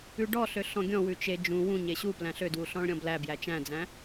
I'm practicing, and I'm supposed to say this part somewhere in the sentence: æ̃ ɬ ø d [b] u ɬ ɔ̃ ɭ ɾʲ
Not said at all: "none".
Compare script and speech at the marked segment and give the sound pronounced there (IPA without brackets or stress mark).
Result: w